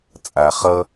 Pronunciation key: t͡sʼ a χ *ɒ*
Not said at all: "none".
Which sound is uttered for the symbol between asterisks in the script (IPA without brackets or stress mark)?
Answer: ʌ